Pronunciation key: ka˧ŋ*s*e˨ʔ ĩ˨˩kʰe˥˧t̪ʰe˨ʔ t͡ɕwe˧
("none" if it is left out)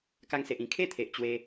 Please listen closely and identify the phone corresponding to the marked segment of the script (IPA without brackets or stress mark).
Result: s